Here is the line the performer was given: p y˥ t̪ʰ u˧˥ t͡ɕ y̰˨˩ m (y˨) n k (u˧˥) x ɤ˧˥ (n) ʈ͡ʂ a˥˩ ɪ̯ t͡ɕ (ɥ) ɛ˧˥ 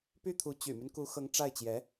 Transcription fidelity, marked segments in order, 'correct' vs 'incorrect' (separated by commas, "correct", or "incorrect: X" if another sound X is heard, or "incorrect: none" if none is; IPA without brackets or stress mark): incorrect: y˦, correct, incorrect: ŋ, incorrect: j